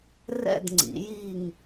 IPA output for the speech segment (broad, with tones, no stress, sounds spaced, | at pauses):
r ɛ̰˥˧ d ŋ͡ǀ ḭ˩˥ j i˥˧ ŋ